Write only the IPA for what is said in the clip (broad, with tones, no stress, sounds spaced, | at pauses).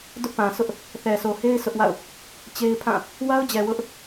d ʊ˦ ʔ p ã˨ s ʊ˦ ʔ | θ ɛ˨ s o˨ h e˦ ɪ̯ s ʊ˦ ʔ w a̰˦˨ ʊ̯ | t͡ɕ e˦ ɪ̯ pʰ ã˦˨ | w a˦ ʊ̯ d͡ʑ ɛ˨ w ʊ˦ ʔ